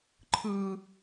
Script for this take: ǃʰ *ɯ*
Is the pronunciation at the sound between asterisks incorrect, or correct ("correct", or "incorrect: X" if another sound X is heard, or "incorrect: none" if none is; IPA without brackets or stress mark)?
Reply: correct